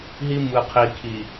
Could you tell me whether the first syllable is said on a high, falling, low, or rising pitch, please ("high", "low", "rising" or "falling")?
high